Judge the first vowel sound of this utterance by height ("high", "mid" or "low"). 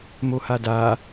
mid